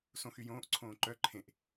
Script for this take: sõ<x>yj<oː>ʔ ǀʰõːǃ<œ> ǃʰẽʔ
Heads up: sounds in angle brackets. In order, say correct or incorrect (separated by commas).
correct, incorrect, correct